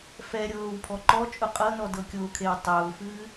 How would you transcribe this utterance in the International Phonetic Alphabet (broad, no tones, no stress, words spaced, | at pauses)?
fɛɾʲɤːw pʰɔǃɔt͡ʃʼʊ qʼɤnɔ dɤkʲʊːkʰew tˤʊːfɨː